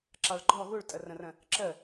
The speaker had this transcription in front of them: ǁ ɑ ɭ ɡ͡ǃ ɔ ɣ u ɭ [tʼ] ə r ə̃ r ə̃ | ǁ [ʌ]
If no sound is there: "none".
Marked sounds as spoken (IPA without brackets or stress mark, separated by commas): tʼ, ə